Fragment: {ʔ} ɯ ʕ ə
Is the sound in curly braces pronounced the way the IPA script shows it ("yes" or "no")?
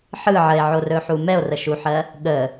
no